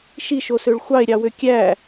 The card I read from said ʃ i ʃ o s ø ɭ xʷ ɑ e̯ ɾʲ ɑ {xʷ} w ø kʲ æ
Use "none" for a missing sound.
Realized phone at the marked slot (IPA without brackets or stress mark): none